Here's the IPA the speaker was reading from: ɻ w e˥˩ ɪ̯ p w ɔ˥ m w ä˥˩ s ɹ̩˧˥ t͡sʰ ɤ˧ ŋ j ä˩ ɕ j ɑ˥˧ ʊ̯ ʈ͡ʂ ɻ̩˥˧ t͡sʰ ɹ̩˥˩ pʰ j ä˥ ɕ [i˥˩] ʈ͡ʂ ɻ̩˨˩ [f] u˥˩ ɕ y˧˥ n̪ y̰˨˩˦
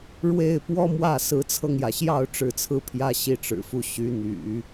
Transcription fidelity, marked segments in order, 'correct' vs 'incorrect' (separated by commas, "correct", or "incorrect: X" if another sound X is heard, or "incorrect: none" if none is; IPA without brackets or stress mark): correct, correct